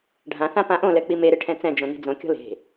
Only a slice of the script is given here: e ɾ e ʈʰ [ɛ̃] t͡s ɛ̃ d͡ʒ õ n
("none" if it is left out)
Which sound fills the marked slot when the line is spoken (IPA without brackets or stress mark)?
ɛ̃